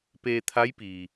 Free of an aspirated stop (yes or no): no